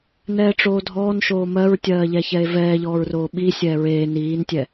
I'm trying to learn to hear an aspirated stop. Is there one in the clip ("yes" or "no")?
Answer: no